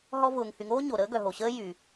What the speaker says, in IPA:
ɦɔ˦vʊː˨ŋ hy˨ŋoː˥ɲo˩ ɾəː˥ɡœ˨ɦo˩ɕəː˥ jy˩

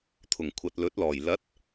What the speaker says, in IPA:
t̪ʰʊ˨˩ŋkʷʰɐ˨t̚lɵ˨˥t̚lɔː˨˩j lɐ˨˥t̚

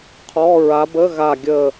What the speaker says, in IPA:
qʰɔ˧˥˧ ɹa˨˦bə˧˥˧ ɣa˦˨ɡʲə˦˨

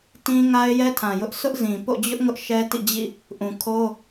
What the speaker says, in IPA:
tĩ˦ ŋa˦ɪ̯jɛ˦tʰã˨jʊ˦ʔ sʊ˦ʔzĩ˨po̰˦˨ d͡ʑʊ˦ʔ ŋʊ˦ʔʃɛ˦tḭ˦˨d͡ʑḭ˦˨ | ʔũ˨kʰo˦

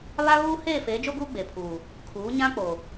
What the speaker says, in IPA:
βa˦ɣuː˦ heː˦˨feː˨˦d͡ʒo˦ɡuː˦ ɡ͡be˨pʰuː˨ | kʰuː˨˦ɲã˦k͡po˨

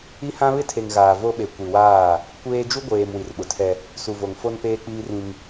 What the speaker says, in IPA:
i˦hã˦ βɪ˦tʰe˨ŋ ɣaː˨ vo˦ɓe˨ kʷi˨waː˦˨ | kʷeː˦ d͡ʒu˦ɡʷeː˨m wi˨rɓʊ˨tʰɛ˦ | su˨vo˨ŋ fo˦npeː˦k͡piː˦rĩ˦ŋ

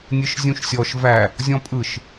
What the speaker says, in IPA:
nʲɯʃzʲũʃsʲɔʃ væ | zʲɔ̃pʼɯʃ

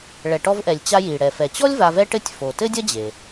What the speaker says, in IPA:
ɭɛ˩ʈɔ˧vʔɛ˩lʲ t͡ɕa˧ji˩ ɽɛ˩fɛ˩t͡ɕɔ˥lʲ va˧vɛ˥ ʈɘ˥tʲ fo˩ tɘ˥dʲɐ˥ d͡ʑe˩

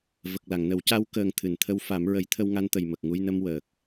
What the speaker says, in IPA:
və˨˩k̚la˨˩˨ŋnə˨˩˦w ca˧˥wkəː˨˩ŋ t̪ʰɨ˨˩˨nt̪ʰə˧˥w fa˨˩˦mɹə˨˩˦jt̪ʰə˧w ŋa˧˥nt̪ə˨˩jmə˨˩k̚ ŋu˧jnə˧m wəː˨˩k̚

